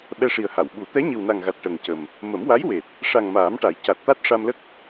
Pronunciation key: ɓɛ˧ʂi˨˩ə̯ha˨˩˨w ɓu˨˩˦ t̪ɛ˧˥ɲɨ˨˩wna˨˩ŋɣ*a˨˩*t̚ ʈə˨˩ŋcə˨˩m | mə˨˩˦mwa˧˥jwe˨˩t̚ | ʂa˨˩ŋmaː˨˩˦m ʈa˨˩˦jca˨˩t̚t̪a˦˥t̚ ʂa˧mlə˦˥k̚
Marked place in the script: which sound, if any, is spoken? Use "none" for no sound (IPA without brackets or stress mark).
a˨˩